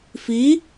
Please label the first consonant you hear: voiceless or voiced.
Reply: voiceless